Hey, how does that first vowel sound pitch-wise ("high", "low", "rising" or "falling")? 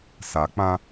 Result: low